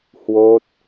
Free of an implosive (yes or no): yes